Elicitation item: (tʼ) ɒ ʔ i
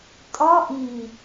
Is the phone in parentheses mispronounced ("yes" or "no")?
no